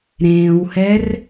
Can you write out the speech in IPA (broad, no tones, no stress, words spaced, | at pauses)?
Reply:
ɾẽːwhɛr